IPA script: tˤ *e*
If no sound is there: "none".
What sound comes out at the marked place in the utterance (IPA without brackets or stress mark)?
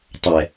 ɛ